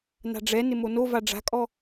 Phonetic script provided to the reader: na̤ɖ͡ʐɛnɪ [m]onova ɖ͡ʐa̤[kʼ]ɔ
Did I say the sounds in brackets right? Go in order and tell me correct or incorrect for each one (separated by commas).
correct, correct